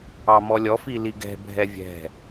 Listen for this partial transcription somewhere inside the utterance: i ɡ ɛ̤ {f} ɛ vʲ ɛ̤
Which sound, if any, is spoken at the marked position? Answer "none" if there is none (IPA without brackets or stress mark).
bʱ